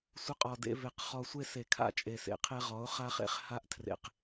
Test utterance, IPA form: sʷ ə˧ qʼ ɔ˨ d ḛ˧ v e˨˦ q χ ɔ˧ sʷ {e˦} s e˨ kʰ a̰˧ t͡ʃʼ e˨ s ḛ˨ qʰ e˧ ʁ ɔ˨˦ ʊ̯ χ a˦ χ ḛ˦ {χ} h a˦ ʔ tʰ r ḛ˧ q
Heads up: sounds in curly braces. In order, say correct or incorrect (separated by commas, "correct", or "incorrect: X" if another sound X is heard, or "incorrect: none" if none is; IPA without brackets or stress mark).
correct, correct